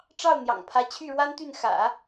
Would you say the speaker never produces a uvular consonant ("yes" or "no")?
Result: yes